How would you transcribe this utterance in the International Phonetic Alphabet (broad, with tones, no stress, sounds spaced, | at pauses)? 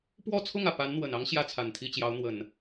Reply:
p w ɔ˥˧ t͡sʰ ʊ˥˩ ŋ ä˩ p a˧˥ n n̪ w ə˨˩ n ɑ˥ ŋ ɕ j ä˥ t͡sʰ a˨˩ n t̪ʰ i˥˩ t͡ɕ j ɑ˧˥ ʊ̯ n̪ w ə˨˩˦ n